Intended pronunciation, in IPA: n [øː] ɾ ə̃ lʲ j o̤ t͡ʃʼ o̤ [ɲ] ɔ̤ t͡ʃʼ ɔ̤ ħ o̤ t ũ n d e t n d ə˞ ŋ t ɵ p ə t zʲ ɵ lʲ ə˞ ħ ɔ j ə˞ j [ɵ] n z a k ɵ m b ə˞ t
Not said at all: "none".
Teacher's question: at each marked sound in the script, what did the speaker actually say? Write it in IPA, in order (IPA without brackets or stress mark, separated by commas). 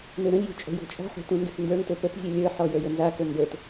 ø, j, ɵ